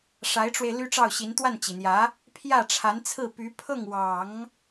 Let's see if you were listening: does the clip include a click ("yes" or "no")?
no